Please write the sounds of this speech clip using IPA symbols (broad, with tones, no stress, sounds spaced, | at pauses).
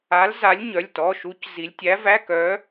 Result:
a˨˥ l z a˨˥ lʲ ɲ œ˩˧˩ lʲ t ɔ˩˧˩ ʃ u˨˥ c z i˩˧ lʲ tʲ æ˨˥ v æ˧˥˧ k œ˨˥